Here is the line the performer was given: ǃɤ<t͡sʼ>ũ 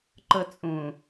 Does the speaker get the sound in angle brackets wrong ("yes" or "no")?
no